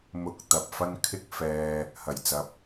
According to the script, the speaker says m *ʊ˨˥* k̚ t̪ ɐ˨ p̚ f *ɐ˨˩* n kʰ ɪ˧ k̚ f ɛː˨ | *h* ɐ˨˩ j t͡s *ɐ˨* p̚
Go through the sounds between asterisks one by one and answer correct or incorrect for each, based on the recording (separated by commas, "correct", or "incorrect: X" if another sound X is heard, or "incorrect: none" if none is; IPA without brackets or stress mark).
correct, incorrect: ɐ˧, correct, correct